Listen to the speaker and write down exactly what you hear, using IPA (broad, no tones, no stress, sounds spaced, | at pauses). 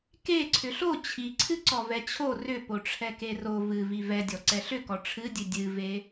k e ǀʰ ʏ ɬ o t͡ɕʰ i ǀʰ ɨ ǀ ɔ v ɛ t͡ɕʰ o r ʏ p o ʈ͡ʂʰ ɛ k e r o v ɨ v i v ɛ dʲ ɔ ǀ ɛ ɬ ʏ k ɔ ʈ͡ʂʰ ɨ dʲ ɨ dʲ ɨ v e